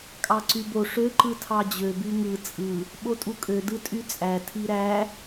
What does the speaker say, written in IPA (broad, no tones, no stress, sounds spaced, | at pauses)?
kʼ ɑ ǀ y b o ʂ ø ǃ ɯ tʰ ɑ d͡ʑ ø b y ŋ ɯ t͡sʼ ɯ | ɓ o tʼ u kʼ ø d ɯ tʼ y t͡sʼ æ tʰ i ɾ æ